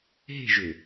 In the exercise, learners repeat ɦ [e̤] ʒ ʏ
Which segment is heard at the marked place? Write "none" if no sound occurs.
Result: e̤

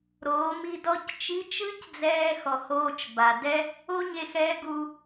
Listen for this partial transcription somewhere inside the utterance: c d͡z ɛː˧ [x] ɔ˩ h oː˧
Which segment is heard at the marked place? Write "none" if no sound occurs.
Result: x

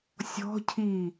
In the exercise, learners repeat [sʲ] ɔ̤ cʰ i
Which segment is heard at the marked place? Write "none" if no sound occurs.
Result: sʲ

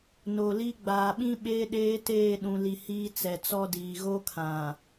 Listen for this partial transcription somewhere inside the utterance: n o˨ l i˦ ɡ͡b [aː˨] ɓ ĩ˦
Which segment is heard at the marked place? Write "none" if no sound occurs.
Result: aː˨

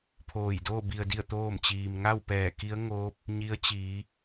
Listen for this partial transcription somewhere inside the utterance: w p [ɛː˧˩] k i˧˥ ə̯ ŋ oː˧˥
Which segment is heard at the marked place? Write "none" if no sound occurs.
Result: ɛː˧˩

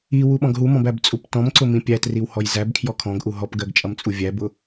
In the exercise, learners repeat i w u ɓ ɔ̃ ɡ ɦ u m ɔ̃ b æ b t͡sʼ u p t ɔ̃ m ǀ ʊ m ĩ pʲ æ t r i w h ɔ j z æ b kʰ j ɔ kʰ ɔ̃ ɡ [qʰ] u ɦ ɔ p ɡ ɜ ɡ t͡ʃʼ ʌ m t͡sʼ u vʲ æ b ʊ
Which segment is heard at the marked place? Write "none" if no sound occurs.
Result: ʔ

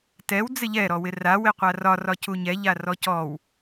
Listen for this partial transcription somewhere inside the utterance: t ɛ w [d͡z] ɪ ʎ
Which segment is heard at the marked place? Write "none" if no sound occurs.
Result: d͡z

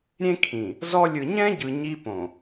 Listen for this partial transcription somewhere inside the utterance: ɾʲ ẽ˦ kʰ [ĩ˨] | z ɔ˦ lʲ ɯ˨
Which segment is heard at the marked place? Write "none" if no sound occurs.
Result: ĩ˨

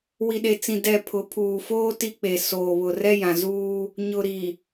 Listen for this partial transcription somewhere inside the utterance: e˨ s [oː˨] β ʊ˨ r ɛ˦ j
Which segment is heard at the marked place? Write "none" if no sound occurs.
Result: oː˨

